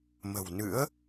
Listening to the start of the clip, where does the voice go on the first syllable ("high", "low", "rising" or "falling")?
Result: low